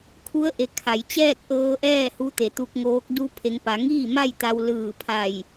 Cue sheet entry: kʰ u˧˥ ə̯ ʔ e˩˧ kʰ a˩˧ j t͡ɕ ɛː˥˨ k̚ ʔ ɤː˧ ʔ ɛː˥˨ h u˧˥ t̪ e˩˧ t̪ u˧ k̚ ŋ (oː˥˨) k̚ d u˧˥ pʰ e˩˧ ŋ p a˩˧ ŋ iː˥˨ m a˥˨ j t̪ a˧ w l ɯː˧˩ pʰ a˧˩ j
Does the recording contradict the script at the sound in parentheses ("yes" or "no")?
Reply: yes